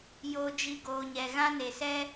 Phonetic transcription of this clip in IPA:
joː˧d͡ʒi˧ ɡoː˨ɲɛ˨ ɣã˦ne˨sɛ˦

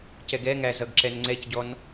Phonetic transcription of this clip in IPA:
cɛɡɛŋæ zʌɡǁɛnŋ͡ǀɛcɟɔn

